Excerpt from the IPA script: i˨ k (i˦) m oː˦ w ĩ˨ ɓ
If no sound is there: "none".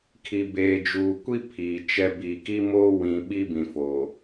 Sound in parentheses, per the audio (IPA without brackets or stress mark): i˦